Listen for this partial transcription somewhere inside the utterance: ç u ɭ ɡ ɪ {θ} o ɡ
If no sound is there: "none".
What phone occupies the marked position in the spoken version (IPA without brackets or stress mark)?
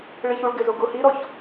z